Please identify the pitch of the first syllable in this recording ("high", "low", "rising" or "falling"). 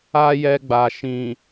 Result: high